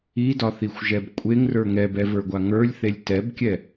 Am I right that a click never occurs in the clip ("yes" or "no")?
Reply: yes